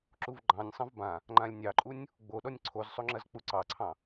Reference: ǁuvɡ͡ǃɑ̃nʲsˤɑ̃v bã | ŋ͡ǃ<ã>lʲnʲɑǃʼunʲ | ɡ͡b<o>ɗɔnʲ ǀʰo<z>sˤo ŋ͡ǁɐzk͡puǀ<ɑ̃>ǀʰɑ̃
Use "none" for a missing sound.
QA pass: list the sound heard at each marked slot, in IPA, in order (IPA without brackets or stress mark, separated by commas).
ã, o, z, ɑ